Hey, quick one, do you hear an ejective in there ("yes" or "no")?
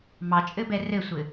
yes